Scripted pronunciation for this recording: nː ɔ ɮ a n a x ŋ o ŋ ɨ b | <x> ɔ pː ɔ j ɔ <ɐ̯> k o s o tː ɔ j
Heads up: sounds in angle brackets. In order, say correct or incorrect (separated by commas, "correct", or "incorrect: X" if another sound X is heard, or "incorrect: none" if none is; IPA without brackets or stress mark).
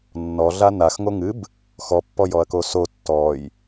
correct, correct